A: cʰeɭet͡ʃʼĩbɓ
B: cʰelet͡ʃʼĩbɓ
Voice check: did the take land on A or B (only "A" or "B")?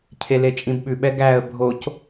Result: B